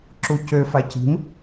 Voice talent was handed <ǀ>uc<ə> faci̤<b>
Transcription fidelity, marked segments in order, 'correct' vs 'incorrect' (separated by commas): incorrect, incorrect, incorrect